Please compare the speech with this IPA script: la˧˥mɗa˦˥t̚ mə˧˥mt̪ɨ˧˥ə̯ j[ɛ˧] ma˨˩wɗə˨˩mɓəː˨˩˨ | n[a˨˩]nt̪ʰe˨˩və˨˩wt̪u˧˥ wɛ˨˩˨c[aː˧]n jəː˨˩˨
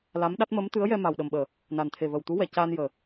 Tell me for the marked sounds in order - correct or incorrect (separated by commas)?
correct, correct, correct